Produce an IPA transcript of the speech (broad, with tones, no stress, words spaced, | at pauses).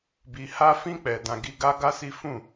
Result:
bi˨ha˧fĩ˧ k͡pɛ˨ dã˨ ɡi˧ɡa˦ɡa˦si˦ fũ˦˨